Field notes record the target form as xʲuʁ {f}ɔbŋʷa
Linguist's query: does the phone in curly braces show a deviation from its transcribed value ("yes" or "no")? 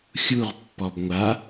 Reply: yes